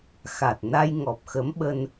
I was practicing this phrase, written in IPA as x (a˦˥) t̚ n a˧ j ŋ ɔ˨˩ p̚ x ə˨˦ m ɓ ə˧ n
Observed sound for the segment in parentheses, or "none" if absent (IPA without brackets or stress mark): a˨˩